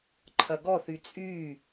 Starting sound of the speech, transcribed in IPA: ǃʰ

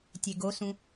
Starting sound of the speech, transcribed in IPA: tʲ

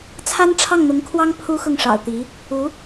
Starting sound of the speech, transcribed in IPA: t͡sʰ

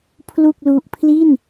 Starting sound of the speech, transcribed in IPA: pʰ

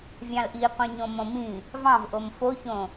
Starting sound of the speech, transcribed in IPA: vʲ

